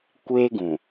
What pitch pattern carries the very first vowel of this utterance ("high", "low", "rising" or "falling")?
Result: high